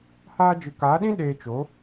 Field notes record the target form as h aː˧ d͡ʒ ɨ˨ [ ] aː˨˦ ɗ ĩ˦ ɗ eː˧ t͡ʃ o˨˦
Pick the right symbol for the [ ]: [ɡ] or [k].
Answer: k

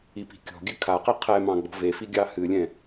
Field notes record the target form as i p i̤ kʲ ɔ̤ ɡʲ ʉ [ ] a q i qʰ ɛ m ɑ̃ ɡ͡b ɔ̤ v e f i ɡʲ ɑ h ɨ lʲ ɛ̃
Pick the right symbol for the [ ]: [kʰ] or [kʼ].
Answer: kʰ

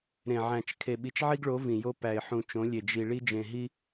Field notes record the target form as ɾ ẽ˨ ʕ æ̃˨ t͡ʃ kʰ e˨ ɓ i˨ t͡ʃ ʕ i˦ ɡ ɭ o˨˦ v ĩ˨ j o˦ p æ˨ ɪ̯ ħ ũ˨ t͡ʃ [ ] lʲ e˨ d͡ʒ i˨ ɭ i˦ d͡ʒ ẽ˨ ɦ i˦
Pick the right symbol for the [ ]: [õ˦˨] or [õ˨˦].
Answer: õ˨˦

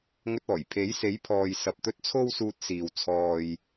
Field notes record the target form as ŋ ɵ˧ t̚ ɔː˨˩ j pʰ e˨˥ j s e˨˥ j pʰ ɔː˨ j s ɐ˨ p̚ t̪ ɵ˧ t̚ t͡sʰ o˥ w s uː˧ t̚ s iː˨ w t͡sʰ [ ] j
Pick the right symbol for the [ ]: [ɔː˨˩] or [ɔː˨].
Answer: ɔː˨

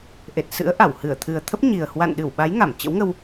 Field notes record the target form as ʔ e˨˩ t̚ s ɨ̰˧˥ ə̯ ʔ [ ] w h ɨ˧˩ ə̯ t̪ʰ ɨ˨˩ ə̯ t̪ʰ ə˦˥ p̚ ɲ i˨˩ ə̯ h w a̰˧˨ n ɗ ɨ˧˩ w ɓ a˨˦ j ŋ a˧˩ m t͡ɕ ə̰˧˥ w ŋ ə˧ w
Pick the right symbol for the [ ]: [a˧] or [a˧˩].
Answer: a˧˩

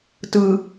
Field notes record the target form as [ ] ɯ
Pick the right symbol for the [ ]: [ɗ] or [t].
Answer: t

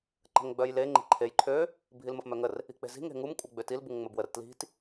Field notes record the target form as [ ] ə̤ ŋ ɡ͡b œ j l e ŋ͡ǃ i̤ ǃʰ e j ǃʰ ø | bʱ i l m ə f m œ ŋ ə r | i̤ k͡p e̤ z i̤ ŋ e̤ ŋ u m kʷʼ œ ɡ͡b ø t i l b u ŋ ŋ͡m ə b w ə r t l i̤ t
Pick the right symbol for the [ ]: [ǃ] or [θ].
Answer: ǃ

